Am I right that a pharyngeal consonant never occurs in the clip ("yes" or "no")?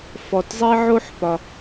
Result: no